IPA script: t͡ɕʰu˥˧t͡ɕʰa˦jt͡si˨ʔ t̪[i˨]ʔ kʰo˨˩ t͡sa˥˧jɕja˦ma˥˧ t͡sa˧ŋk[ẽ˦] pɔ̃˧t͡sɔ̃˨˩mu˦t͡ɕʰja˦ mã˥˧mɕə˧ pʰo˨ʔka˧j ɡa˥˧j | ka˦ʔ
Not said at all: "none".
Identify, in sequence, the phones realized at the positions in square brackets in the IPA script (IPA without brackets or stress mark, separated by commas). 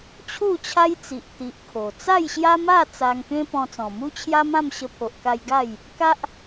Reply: i˨, ẽ˦